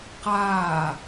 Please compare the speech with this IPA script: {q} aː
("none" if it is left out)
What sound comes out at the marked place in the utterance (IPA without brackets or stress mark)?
q